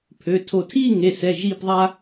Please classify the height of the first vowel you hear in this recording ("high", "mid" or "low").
mid